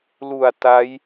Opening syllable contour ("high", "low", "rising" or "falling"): low